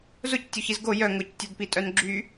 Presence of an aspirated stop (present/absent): absent